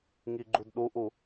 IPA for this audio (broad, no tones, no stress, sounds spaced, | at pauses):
ŋ i ɡ͡ǃ u d ɗ u ʔ u